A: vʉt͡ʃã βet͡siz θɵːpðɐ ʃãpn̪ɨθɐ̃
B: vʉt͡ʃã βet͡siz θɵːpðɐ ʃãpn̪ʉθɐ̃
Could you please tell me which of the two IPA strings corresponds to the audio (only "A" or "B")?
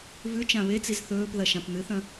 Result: A